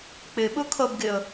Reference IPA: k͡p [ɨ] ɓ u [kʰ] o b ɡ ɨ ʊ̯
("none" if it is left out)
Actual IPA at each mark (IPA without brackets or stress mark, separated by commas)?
ɨ, kʰ